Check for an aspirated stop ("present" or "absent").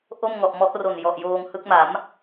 absent